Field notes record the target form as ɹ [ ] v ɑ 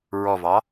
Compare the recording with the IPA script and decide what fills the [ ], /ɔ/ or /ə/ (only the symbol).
ɔ